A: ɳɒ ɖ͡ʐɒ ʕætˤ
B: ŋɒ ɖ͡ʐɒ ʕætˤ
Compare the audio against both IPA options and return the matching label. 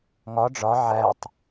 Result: B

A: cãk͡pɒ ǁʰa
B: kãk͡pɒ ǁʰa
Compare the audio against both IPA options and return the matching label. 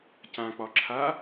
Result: A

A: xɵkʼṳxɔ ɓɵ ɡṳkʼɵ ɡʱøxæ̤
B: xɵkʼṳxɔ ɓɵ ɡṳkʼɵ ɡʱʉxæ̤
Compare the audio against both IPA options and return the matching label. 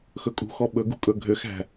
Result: A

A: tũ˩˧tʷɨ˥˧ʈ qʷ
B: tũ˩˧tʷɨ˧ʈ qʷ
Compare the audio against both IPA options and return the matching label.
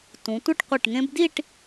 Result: A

